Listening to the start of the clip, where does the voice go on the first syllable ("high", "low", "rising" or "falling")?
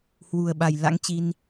low